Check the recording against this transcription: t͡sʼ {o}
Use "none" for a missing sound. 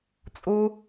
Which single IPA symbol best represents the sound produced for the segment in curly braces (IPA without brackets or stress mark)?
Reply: u